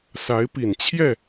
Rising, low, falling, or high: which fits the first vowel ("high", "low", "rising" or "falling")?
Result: rising